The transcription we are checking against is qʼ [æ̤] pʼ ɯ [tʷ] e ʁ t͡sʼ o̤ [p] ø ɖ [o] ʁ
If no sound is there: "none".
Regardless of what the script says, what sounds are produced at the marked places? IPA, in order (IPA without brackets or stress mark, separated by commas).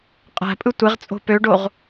æ̤, tʷ, p, o